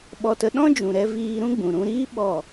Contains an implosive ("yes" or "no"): yes